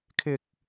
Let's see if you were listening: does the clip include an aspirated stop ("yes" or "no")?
yes